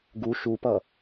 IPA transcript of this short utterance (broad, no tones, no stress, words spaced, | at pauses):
ɡu ʃupʌ